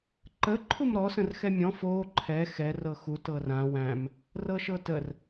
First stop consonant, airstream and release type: click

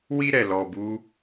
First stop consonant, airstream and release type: plain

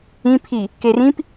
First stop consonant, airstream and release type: aspirated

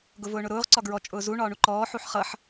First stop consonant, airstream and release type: plain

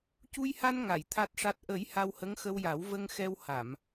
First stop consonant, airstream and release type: plain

